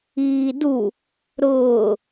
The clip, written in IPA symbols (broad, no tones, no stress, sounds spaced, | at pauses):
iː d u | ɾ ʊː